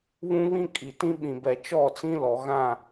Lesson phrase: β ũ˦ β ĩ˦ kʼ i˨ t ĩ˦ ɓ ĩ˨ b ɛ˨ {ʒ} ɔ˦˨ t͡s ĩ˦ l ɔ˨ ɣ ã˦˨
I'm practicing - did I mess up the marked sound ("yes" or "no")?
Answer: yes